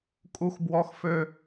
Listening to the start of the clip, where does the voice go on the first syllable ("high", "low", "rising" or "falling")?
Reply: high